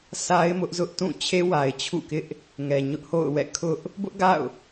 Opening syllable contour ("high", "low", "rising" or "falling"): high